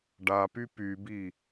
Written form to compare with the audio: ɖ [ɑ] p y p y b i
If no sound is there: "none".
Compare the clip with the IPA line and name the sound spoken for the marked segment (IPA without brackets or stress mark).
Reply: a